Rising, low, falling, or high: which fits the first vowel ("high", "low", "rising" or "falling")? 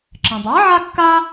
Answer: low